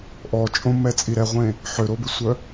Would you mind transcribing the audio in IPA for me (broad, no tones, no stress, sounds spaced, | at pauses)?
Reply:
ʔ ɔ t͡ʃʼ õ m ɛ t͡sʼ i ɾ ɛ ʁʷ ẽ | ħ ø ɾ o b ɪ sʷ œ